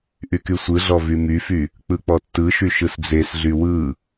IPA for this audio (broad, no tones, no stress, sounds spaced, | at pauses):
ʔ y k y sʷ ɯ ɮ ɔ v y m y f y | k͡p ɯ k͡p ɔ tː ɯ ʃ y ʃ ɯ s d͡z e s ɮ y w ɯ